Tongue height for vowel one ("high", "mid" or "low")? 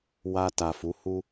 low